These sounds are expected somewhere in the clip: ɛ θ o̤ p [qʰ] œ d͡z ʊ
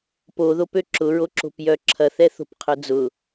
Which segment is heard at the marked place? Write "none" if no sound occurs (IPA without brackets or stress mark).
qʰ